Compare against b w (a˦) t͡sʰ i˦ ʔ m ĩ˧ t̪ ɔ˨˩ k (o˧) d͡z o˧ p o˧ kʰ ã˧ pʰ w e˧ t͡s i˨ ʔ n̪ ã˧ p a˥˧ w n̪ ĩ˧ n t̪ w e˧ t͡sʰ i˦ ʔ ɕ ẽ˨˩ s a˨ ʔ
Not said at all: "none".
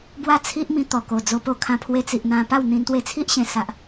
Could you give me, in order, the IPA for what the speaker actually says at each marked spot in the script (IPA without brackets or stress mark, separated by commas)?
a˦, o˨˩